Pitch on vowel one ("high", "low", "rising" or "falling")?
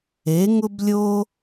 rising